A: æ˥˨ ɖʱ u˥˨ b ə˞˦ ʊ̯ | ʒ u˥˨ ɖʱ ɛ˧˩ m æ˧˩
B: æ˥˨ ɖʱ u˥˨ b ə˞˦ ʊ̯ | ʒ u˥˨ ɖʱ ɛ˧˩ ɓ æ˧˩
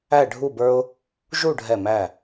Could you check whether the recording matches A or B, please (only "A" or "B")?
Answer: A